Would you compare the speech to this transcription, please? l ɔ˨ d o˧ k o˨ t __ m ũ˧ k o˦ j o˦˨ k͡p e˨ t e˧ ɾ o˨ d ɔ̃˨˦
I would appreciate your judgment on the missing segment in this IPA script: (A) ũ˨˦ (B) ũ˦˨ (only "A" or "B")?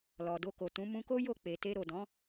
A